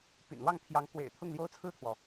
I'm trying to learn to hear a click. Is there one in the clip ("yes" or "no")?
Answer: no